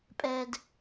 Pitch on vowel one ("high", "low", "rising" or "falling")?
low